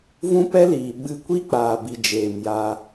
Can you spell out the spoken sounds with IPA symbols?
v ũ˦ p ɛ˦ l iː˨ ɓ ɨ˧ kʷ i˦ k͡p aː˨ b i˨ d͡ʒ eː˨ m j aː˧

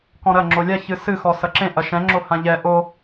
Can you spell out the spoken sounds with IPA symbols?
k ɔ̃ ɾ ɐ ŋ͡ǁ o lʲ a ç ɨ s ɨ x ɔ s ɐ ǁ ẽ ʔ ɐ ʃ ɛ̃ ŋ͡ǁ o h ã ʎ ɛ ʔ o

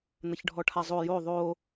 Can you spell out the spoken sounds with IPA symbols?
n̪ ə ç ɖʱ ɔ ʈʰ a zˤ o j o ðˤ o

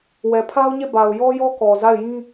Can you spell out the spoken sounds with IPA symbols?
w ɛ˨ pʰ a˦ ʊ̯ ɲ e˦˨ b a˨ ʊ̯ j ɔ˦ j ɔ˦ k ɔ˨ z a˦˨ ɪ̯ j ĩ˦

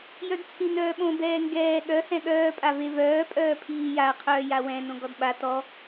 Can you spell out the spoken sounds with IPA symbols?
j œ d t͡sʰ ĩ n œː ɓ õ b ɛː ŋ ɡ ɛː ɠ œ h ɛ̃ ɠ œː pʼ a v e v œː pʼ œː pʰ iː j a qʰ œː j a w ɛ̃ n õ ɡ ɔ d ɓ a t ɔ

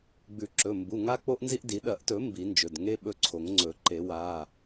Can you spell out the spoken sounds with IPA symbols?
ɡ͡b ʉ˨˩˦ ǁ ɵ˩˧˩ m b u˩˧˩ ŋ a˦ k͡p o˦ ʔ n z i˦ ʔ d i˨˩˦ ɗ ɐ˨˩˦ ʔ t ɵ˨˩˦ m b i˨˩˦ n d͡ʒ ɵ˩˧˩ d ŋ e˦ ɓ ɵ˦ ǀʰ o˨˩˦ ŋ ŋ͡ǀ ɵ˨˩˦ ǃ e˨˩˦ w a˩˧˩

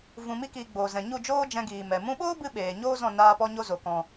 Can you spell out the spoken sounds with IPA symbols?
v ũ˨ m i˧ k iː˨ ɡ͡b oː˨ z ɛ̃˨ ɲ u˦˨ d͡ʒ oː˦ d͡ʒ ɛ̃˧ ɡ iː˨ m ɛ˨ m ũ˧ ɓ oː˦ b ɨ˧ ɓ eː˨ ɲ oː˦ z ɔ̃˦˨ n aː˧ p ɔ˧ ɲ o˧ z o˨ k ɔ̃˨

